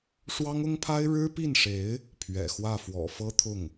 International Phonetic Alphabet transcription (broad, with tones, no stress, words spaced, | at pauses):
ʂwɑ˥ŋʊ˥ŋpʰa˥ɪ̯ ɻɻ̩˥pi˥˩nʂe˧˥ɪ̯ | pʰɥɛ̰˨˩xwä˥˩ fwɔ̰˨˩fɤ˥t̪ʰʊ˥˩ŋ